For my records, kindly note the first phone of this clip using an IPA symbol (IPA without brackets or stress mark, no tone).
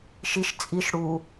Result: ʃ